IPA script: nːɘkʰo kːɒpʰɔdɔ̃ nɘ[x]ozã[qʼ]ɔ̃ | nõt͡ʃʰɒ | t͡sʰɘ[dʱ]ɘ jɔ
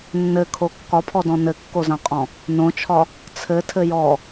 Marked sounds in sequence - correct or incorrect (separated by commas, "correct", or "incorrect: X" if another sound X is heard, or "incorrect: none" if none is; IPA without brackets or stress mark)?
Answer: incorrect: kː, correct, incorrect: tʰ